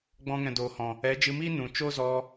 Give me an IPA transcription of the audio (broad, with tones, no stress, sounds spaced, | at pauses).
ɡ͡b ɔ̃˧ ŋ ɛ̃˨ d oː˨ h ɔ̃˨ | ɛ˨˦ d͡ʒ ɨ˧ m iː˦ n ũ˨ t͡ʃ o˦ z ɔ˧